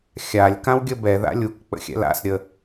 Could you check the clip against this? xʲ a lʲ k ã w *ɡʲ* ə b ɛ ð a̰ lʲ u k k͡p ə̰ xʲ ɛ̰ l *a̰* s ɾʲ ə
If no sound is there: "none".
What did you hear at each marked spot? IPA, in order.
ɡʲ, a̰

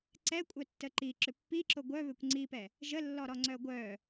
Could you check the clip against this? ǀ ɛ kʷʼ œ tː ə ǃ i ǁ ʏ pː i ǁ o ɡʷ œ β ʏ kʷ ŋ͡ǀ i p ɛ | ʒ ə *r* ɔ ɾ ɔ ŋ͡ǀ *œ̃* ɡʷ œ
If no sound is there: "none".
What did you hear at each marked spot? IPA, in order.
lː, œ

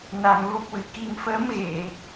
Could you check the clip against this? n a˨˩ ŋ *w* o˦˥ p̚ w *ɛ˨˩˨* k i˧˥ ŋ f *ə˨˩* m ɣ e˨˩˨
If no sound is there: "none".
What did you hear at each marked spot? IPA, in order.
v, ɨ˨˩˨, ə˧˥

